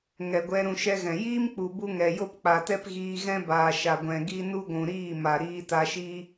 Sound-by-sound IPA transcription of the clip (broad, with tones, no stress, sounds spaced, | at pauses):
ŋ ɛ˨ ɡʷ ɛ˧ ɾ ũ˧ ʃ ɛ˦ ɣ ɛ̃˨ j iː˦ m k͡p u˨ b u˦ ŋ ɛ˨ j o˦ p k͡p a˨ t ɛ˦ p ɣ iː˧ ɣ ɛ̃˦ b aː˨ ʃ a˨ ɡʷ ɛ̃˨ ɡ i˦ n u˦ ɡʷ ũ˨ ɾ iː˦˨ m a˨ ɾ iː˧ t a˧ ʃ i˦